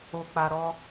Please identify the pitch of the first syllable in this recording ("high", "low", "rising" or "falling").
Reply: low